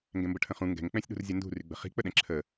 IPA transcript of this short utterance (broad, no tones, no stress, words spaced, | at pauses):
ŋɡɛ̃mbəʈʰə̃χũ ŋɡɛ̤ŋk͡pɛ̃sʲɗṳrzʲə ndṳryɡ͡bə̤ χi̤k͡pəɗɛ̃ ǁʰə